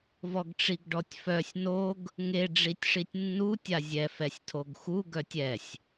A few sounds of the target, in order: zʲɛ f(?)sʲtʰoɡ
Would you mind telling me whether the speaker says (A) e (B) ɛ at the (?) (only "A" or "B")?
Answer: B